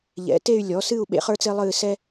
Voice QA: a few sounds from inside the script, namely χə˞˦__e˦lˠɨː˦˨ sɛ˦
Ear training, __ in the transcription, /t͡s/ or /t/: t͡s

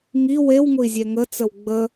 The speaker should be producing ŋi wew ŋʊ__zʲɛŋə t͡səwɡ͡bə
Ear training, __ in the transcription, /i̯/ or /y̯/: i̯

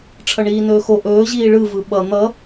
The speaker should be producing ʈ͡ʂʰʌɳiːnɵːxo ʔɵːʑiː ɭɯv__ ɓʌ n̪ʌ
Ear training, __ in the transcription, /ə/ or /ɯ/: ɯ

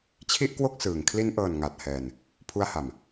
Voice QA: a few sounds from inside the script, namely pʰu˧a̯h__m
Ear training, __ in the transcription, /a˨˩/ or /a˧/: a˨˩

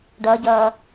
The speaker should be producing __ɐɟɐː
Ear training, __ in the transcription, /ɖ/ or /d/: ɖ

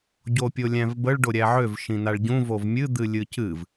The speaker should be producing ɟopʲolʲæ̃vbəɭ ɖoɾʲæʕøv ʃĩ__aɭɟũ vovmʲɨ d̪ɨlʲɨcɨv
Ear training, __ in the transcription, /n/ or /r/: n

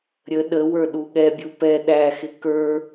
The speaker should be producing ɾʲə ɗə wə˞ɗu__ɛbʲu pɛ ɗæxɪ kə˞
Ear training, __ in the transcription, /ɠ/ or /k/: ɠ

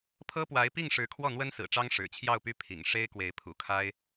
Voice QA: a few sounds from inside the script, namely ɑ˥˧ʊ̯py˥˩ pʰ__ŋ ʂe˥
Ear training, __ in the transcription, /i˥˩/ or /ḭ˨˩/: ḭ˨˩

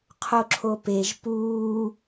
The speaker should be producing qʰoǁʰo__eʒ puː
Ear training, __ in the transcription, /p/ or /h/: p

